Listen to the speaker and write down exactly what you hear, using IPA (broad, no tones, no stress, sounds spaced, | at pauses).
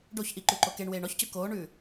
ɖ o ç ʔ i ǃ ʉ ǃ o k e ɳ w eː ɳ ɔ ç c ʉ k oː ɳ ʉː